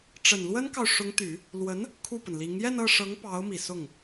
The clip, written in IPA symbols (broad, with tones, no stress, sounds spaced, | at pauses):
ʈ͡ʂ ə˨˩ n l w ə˥ n k ɑ˨ ʊ̯ ʂ ʊ˧˥ ŋ t̪ y˨˩˦ | l w ə˧˥ n | kʰ u˥˩ p ə˩ n l i˧˥ ŋ j ɛ˥˧ n ɤ˥˩ ʂ ɤ˧˥ ŋ p ɑ˧˥ ʊ̯ m i˨˩ s ʊ˥˩ ŋ